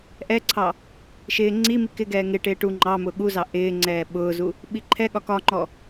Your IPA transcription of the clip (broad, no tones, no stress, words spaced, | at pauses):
ʔɛǀʰɑ | ʃɪː ŋ͡ǀimi kɪɡɛː ŋɪʈɪː ʈu ŋ͡ǃɑmʊ ɠuzɑ ʔɪːŋ͡ǀɛː ɓʊːzu | ɓiǃʰɛɠɒ kɒŋ͡ǃɔ